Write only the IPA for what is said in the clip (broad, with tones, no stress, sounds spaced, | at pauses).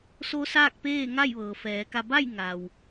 s o˧˥ s aː˥˨ k̚ p eː˥˨ ŋ a˥˨ j ʋ ɤː˩ f ɛː˩˧ k a˧ b a˥˨ j ŋ a˩ w